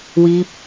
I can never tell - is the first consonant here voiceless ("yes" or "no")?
no